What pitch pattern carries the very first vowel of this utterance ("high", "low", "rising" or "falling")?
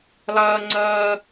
low